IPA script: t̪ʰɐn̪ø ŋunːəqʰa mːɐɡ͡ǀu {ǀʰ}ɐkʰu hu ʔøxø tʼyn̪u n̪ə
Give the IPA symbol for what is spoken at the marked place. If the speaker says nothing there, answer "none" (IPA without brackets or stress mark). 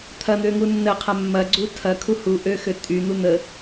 tʰ